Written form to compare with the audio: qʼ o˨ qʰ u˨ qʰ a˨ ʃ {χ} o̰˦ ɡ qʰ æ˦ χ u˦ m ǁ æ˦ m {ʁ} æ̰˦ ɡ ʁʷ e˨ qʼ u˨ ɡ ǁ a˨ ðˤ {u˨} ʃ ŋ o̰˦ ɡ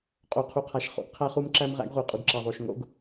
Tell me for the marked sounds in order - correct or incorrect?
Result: correct, correct, incorrect

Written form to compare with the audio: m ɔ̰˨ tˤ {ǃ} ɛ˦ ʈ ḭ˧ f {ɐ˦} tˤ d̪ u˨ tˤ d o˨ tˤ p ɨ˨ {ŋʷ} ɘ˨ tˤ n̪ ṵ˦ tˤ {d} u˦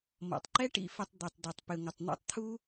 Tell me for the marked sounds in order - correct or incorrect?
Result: correct, incorrect, correct, incorrect

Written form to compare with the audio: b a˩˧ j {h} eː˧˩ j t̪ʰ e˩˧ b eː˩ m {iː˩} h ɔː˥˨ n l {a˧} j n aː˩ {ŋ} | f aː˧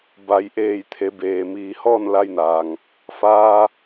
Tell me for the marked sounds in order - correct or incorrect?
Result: incorrect, correct, correct, correct

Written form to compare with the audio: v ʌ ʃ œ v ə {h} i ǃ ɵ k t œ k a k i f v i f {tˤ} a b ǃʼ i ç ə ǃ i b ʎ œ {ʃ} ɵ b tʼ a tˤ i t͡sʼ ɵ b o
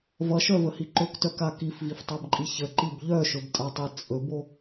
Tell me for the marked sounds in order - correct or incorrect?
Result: correct, correct, correct

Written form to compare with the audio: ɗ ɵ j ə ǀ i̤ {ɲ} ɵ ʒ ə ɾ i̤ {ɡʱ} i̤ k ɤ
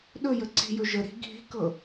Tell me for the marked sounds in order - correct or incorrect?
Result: incorrect, correct

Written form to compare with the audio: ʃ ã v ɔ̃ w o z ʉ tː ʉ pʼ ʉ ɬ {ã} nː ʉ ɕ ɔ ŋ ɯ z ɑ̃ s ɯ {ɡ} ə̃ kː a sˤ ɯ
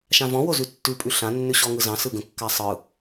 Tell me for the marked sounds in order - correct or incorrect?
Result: correct, correct

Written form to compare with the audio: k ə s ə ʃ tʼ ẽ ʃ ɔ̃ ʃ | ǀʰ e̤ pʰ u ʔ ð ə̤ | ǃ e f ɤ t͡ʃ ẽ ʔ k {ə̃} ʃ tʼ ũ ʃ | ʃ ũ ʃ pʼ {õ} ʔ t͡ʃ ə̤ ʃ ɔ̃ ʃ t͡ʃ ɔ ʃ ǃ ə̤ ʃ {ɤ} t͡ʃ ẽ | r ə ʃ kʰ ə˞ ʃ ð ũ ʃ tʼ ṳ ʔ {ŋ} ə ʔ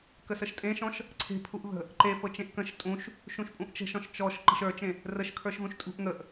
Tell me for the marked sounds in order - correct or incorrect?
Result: correct, incorrect, incorrect, correct

